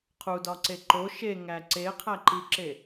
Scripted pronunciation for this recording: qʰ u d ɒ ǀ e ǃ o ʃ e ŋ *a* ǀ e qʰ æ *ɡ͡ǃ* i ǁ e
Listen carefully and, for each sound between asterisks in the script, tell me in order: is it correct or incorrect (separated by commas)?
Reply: incorrect, incorrect